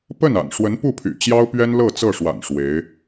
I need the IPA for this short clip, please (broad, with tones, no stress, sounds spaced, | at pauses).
p ə˥˩ n a̰˨˩ n ʂ w ə˧˥ n p u˥˩ pʰ y̰˨˩ t͡ɕ j ɑ˥ ʊ̯ p ɥ ɛ˥ n l ɤ˥˧ t͡s ɤ˥˩ ʂ w a̰˨˩ n ʂ w e˧˥ ɪ̯